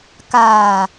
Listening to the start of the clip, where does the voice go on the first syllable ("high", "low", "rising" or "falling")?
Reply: low